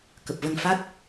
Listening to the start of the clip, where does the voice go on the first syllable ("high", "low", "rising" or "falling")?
low